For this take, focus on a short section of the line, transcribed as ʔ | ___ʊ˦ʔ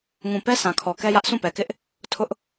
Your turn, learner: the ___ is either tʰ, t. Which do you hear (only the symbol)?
tʰ